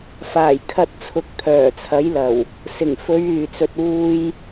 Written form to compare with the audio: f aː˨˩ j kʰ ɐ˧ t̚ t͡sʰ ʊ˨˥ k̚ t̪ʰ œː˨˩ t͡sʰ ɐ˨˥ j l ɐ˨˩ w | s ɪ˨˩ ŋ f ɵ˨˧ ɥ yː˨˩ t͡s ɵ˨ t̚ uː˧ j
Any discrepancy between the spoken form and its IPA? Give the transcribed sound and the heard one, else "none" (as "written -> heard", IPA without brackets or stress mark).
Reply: none